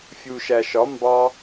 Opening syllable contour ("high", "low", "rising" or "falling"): low